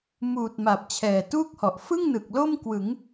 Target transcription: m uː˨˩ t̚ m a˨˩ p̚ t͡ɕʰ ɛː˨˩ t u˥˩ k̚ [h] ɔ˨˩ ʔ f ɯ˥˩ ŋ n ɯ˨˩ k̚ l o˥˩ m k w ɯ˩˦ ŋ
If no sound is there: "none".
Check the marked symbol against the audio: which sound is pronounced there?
h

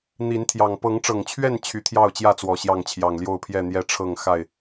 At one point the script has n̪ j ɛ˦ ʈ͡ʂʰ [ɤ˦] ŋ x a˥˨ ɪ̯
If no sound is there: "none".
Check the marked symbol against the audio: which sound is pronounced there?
ɤ˥˨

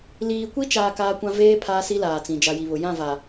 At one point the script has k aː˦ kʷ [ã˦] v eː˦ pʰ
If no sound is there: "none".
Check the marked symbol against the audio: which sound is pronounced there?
ã˦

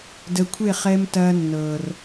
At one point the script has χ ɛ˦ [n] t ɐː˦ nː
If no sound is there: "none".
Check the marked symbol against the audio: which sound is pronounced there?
m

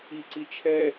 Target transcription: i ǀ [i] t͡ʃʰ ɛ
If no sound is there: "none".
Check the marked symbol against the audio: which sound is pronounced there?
i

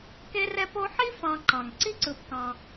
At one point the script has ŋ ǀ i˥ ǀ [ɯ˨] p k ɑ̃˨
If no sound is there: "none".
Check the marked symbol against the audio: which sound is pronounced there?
ɯ˨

